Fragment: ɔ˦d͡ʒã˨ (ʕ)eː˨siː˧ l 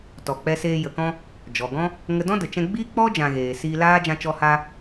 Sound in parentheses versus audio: incorrect: ɣ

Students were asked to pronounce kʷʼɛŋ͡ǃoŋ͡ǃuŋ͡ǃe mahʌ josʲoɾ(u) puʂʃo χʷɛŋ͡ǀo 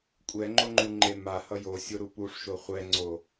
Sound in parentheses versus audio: correct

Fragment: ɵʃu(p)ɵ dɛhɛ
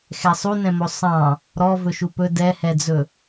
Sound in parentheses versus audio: correct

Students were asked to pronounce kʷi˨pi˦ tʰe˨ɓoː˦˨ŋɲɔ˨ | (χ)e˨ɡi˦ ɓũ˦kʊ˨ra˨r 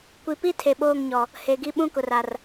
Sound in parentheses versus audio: incorrect: h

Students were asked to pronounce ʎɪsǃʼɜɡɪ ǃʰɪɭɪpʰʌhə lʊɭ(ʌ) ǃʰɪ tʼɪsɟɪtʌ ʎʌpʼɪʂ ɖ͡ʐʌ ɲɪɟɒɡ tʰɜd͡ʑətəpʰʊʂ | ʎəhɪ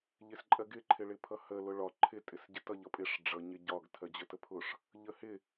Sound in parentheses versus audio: incorrect: ɒ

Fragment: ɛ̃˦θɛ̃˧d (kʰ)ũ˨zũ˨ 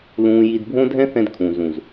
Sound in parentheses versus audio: correct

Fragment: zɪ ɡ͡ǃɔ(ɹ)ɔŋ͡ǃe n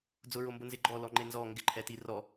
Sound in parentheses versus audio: incorrect: l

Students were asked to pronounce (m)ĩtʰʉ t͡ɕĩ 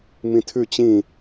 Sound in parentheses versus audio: correct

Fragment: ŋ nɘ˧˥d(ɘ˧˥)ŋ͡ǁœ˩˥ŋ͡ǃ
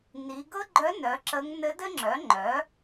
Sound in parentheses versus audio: incorrect: ɘ˥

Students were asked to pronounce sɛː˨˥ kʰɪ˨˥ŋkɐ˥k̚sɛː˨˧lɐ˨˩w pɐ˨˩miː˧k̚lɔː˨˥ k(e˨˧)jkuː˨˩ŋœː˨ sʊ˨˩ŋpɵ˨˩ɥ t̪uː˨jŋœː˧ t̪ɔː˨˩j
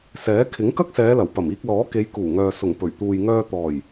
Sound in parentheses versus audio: correct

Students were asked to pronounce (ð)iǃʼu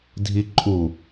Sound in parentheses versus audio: incorrect: dʱ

